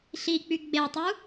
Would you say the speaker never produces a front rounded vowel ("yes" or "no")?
no